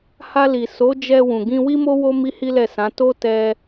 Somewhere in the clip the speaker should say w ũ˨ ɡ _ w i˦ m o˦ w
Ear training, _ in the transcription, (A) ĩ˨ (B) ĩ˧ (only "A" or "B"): B